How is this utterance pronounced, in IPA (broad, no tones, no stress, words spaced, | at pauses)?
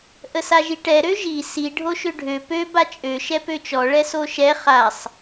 ʔəsaʒiʈɛ ɾøʒi si ɖʱoʃøɖʱø pø bat͡ʃʼø ʃɛpøt͡ʃɔ ɭɛsoʃɛ χasˤ